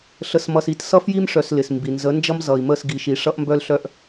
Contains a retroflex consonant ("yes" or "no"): yes